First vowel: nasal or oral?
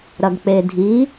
oral